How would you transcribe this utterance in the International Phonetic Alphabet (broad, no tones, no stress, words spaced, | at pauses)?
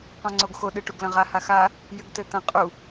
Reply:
qɔ̃ŋ͡ǀoɡxo ɗɨʈuɡlɐ̃ʁa haxa | jɨɡtɘt̪ɐ̃ qʼu